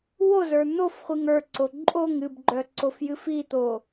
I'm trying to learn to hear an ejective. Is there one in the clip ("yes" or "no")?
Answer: yes